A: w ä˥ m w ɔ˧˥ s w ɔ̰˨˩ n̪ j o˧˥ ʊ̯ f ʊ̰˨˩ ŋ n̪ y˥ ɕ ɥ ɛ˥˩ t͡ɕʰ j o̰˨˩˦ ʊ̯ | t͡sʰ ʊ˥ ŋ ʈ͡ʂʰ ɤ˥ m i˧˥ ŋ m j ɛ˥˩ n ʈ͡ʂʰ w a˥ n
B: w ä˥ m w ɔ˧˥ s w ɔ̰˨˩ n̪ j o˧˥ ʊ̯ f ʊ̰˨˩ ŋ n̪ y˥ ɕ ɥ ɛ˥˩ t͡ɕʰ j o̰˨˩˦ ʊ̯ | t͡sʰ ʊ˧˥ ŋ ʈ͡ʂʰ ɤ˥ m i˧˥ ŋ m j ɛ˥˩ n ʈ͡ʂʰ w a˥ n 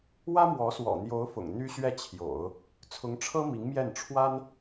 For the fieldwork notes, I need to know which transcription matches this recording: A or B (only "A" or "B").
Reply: B